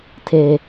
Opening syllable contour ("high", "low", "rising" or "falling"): high